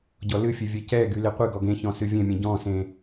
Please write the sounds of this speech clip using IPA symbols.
ɟ ɔ l ɨ fʲ e vʲ ɛ c ɛ ɡ y l e qʷ ɨ ɡ ɔ ɡ ẽ ç ɔ̃ s ɨ vʲ ẽ mʲ ẽ ɟ ɔ̃ s ẽ

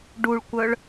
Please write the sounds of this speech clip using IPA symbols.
ɖ u ɭ kʷ œ ɭ

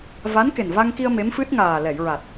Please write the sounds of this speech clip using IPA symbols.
v a˧˥ n k e˨˩ n v a˧ ŋ k i˧ ə̯ m e˧˥ m f ɨ˦˥ t̚ ŋ aː˨˩ l ɛ˨˩˨ j ɹ a˨˩ t̚

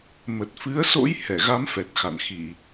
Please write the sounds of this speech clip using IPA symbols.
m ə˨˩ t̚ f ɨ˨˦ ə̯ s o̰˧˥ j h ɛ˧˩ ɣ a˨˦ m f ɛ˨˩ t̚ x a̰˧˨ n x i˧˩˨

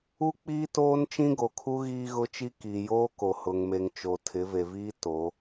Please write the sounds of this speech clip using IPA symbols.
u˦ k͡p iː˦ t oː˦ n t͡ʃ ĩ˦ ɡ o˨ kʰ u˦ ɣ iː˦ ɣ ʊ˦ t͡ʃ i˦ k i˨ j oː˦ k o˨ h ʊ˨ ŋ m e˨ ŋ t͡ʃ o˨ tʰ ɪ˨˦ v e˨ v iː˦ t o˨˦

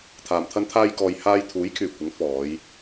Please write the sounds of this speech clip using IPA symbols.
t̪ʰ aː˨ m t̪ʰ ɐ˥ n t̪ʰ aː˥ j k ɔː˧ j h aː˧ j t̪ʰ uː˨˥ j kʰ yː˨˩ kʷ ɪ˨˥ ŋ f ɔː˨˧ j

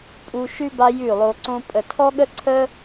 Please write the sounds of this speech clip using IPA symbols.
pʼ u˧ ʃ ʉ˦ b a˦ j ʉ˦˨ lˠ o˧ ǀ õ˦ pʼ ə˨ tʰ ɔ˦ ɠ ə˦ ǀʰ ə˦

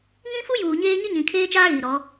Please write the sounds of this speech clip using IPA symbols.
ŋ ĩ˦ f u˦ j uː˨ ɲ eː˦ ɲ ɪ˦ ɲ ĩ˨ kʰ eː˦ t͡ʃ aː˦ ɣ i˨ ɾ ɔ˨˦

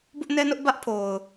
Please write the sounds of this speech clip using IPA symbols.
b ʊ˦ ʔ n ɛ˦ n ʊ˦ ʔ b ä˦ ʔ pʰ o˨ ʊ̯

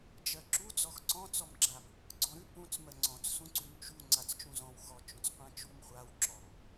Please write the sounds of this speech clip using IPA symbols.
d͡ʒ ɜ ǁ u d͡z ɔ x ǀ ɔ̃ t͡s ɔ m ɡ͡ǁ a m | ɡ͡ǀ ɔ̃ ɾ ʉ p ũ t͡s m ɜ ŋ͡ǀ ɔ̃ t͡s s ũ ǀ ʉ m t͡ʃ u ŋ͡ǀ a t͡s t͡ʃ ũ z ɔ̃ w x ɔ t͡ʃ õ t͡s qʷ ã t͡ʃ u m χʷ a w ǁ ɔ m

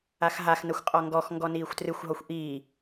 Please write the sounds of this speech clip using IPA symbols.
a x ɦ a x n ɐ xʷ qʼ ɔ ŋ ɡ ɔ x ŋ ɡ ɔ n iː xʷ t r ɨ xʷ ɦ ɔ xʷ ʔ iː

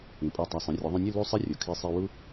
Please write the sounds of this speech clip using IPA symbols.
ĩ˩˧ pʼ ɔ˧˩ tˤ a˧˩ sˤ õ˩˧ rʲ ɔ˩˧ ðˤ ũ˧ nʲ ɯ˥˧ l u˥˧ sˤ e˥ rʲ o˩˧ kʰ i˧ sˤ i˧ w u˥

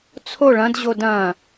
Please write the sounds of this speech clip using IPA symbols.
t͡sʰ o ɭ ɐ̃ d ʑ o d ɐ̃

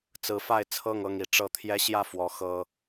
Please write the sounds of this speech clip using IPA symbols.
t͡s ɹ̩˨˦ f a˥˨ ɪ̯ t͡sʰ ɤ˥˨ ŋ ɤ˥˨ ŋ i˨˦ ʈ͡ʂ ɤ˨˦ t̪ʰ j ɛ˦ ɕ j ä˥˨ f w ɔ˨˦ x ɤ˦

